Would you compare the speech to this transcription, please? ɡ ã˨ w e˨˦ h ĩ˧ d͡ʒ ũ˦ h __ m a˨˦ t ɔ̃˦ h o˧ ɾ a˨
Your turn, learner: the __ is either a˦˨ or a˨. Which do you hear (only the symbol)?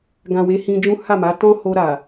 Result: a˦˨